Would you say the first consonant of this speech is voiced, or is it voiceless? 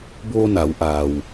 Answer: voiced